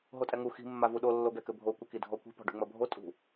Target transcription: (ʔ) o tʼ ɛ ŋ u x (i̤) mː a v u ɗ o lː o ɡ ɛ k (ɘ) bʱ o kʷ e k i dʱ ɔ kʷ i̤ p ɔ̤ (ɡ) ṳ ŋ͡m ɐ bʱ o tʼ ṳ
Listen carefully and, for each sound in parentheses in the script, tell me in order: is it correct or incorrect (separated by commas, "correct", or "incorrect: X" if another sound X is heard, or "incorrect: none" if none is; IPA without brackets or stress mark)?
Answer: incorrect: ɦ, correct, correct, incorrect: ɖ